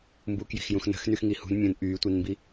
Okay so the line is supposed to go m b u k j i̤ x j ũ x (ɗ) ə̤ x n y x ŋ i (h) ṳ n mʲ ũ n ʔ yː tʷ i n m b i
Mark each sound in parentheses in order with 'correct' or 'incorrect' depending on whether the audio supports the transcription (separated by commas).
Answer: incorrect, correct